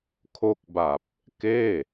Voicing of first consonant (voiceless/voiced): voiceless